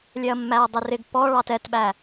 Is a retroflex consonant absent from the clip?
no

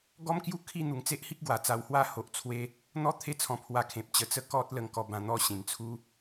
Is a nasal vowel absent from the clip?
no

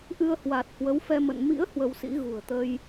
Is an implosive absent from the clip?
yes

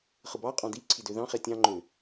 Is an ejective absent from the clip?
no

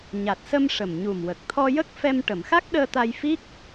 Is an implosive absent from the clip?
no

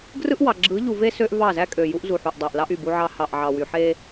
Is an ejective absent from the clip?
no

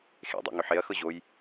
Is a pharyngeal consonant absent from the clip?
no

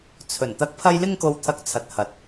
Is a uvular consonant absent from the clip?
yes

